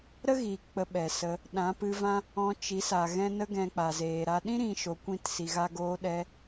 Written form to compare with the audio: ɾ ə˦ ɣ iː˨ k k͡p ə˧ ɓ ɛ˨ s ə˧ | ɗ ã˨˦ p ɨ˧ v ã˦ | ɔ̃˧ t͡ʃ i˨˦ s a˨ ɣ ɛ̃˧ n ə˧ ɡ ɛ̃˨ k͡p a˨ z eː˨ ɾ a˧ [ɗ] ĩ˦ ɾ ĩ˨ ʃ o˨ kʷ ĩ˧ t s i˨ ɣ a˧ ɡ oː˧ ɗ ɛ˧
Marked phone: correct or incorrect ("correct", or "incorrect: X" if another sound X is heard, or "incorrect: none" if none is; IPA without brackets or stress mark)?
correct